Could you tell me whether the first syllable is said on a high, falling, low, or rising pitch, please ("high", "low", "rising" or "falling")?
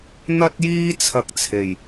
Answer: high